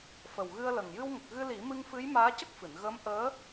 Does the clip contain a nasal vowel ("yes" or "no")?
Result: no